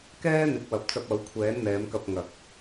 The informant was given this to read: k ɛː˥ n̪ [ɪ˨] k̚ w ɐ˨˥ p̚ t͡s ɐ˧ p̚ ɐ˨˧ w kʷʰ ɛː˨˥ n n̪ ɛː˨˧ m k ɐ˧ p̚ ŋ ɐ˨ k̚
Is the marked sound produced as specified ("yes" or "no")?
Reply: no